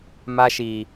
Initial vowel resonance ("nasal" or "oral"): oral